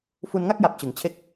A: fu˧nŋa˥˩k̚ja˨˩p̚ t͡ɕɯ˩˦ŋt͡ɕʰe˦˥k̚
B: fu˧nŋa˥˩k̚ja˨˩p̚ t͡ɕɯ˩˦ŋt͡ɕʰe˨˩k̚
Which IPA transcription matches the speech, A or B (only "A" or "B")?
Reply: A